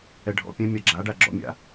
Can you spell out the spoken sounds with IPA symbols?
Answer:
ɛ ɖʱ ɔ̰ pʲ ɛ̃ mʲ a ɡ͡ǁ a ɖ a ɡ͡ǁ ɔ̰ mʲ a̰

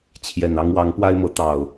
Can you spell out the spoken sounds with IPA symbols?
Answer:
t͡ɕʰ j ɛ˨˩ n ɑ˦ ŋ w ɑ˨˦ ŋ p w a˦ ɪ̯ m ɤ˨˦ t̪ ɑ˨˩ ʊ̯

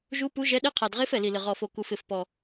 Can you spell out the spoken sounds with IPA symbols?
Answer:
ʒ u˧˥ p u˧˥ ʒ ɛ˧˥ ɗ e˧˥ qʰ a˨˩ d ʁ e˧˥ f ɛ˨˩ l i˨˩ l ɪ˨˩ ʁ ɔ˨˩ f o˨˩ k u˨˩ f ɪ˨˩ f p ɔ˨˩

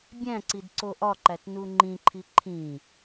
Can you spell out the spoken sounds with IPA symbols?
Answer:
bʲ æ̃ ǀ i d ǀ o ʔ ɒ ǃ æ t n u ŋ͡ǃ ĩ ǃʰ i ǃʰ ĩ

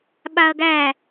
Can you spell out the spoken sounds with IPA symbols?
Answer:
ɓ a ɐ̯ ɡ æ

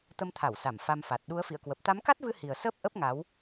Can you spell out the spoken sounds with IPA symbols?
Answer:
t̪ ə˧ m t̪ʰ a˧˩ w s a˧˩ m f a˧ m f a˨˩ t̚ ɗ u˨˦ ə̯ f ḭ˧˨ ə̯ k w ə˨˩ p̚ t̪ a˨˦ m k a˦˥ t̚ v ɨ˧ h i˨˩ ə̯ s əː˦˥ p̚ ʔ ə˦˥ p̚ ŋ a˨˦ w

